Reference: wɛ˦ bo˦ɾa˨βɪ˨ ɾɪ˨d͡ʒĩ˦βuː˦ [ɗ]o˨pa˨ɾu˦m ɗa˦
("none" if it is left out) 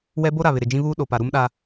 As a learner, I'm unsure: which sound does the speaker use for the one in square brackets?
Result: ɗ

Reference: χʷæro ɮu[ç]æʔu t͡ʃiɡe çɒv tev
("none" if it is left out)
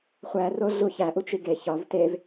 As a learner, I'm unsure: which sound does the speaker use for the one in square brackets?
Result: ç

